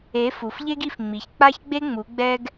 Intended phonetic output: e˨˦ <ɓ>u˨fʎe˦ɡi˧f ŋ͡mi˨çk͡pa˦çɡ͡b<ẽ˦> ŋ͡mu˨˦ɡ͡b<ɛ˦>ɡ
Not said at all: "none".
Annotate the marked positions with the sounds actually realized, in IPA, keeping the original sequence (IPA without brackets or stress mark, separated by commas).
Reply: f, e˦, ɛ˦